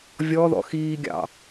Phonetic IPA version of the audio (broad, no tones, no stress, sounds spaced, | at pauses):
vʲ ɔ ð ɔ̰ x iː ɡʲ ɑ̰